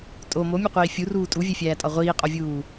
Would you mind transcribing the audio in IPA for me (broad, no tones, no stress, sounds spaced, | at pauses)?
tʼ o m o mʲ u qʷ iː fʲ u r uː tʼ u vʲ e fʲ æː tʼ ɒ ʁʷ iː qʼ o vʲ uː